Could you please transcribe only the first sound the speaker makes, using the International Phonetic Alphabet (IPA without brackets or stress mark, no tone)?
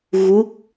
ɣ